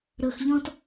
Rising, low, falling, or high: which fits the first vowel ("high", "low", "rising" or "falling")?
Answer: low